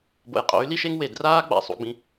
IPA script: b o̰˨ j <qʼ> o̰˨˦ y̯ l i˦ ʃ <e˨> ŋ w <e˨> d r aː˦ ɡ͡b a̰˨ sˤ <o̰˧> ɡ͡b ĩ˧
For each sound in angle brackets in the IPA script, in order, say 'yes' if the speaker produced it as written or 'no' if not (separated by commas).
yes, no, yes, no